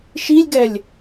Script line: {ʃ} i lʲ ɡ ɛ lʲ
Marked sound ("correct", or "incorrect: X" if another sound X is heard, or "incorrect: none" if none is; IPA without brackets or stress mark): correct